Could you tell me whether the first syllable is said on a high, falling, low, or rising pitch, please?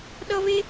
high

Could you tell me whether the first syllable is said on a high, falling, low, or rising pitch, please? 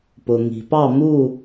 low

